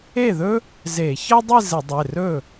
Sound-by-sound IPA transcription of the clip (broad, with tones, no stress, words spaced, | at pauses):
e˥˩ðɵ˥ | ze˧˩˧ çɤ˥dˤi˥˧ zɘ˧˩˧dˤe˩˧˩rɵ˥˩